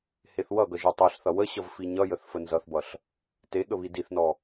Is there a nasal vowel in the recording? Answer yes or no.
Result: no